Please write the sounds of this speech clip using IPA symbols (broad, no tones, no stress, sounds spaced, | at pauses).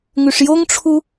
ŋ ʉ ʂ j o ŋ ʈ͡ʂʰ u